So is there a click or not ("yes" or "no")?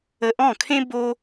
no